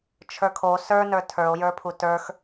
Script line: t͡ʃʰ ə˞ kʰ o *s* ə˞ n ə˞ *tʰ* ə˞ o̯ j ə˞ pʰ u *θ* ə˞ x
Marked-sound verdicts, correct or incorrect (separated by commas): correct, correct, incorrect